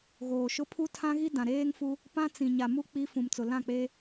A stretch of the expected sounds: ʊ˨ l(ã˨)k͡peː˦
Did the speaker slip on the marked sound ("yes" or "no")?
yes